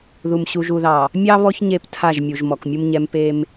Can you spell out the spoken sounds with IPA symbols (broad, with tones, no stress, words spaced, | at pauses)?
ðu˨mɕu˨ʒu˨ðɑ˨ | mʲɑ˦βɔ˦ç ɲe˦˨ptʰa˦˨ʒmʲu˨ʒ mɔ˨kmʲu˦mɲɛ˦m pe˦m